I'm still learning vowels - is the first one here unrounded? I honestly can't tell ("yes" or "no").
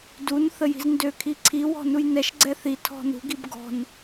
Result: no